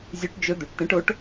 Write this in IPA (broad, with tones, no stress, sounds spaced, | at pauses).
zʲ ʉ˧˥ ʈ d͡ʒ ɵ˧˥ d̪ u˩˧ ʈ t̪ ẽ˧˥ ʈ o˧˥ ʈ